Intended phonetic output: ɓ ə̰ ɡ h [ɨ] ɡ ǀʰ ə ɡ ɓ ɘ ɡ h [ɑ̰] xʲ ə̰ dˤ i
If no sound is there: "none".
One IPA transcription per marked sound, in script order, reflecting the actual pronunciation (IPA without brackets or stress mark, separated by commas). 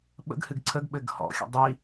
ɨ, ɔ̰